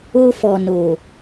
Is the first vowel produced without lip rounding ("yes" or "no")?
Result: no